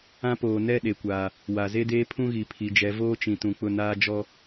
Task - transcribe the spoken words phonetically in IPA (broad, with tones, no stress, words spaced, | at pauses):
ã˦ poː˨ nɛ˦˨ ɗe˨kʷaː˨ | wa˨ze˦deː˦pʰũ˦ ɣi˨pʰi˨d͡ʒɛ˨˦ voː˦t͡ʃĩ˨ tũ˨k͡pʊ˦˨naː˦ d͡ʒɔ˦